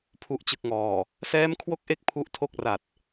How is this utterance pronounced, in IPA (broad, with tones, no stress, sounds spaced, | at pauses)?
pʰ u˨˩ ʔ t͡ɕ ɯ˨˩ k̚ ŋ ɔː˨˩ | s ɛː˦˥ m kʰ w o˦˥ k̚ ʔ e˦˥ k̚ pʰ u˦˥ ʔ tʰ o˥˩ k̚ r a˨˩ t̚